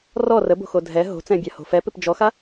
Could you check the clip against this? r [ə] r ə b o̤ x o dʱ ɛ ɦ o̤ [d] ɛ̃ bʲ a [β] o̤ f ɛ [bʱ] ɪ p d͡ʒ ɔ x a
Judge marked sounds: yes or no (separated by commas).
no, no, no, no